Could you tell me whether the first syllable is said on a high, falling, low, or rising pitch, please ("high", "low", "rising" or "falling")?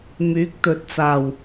rising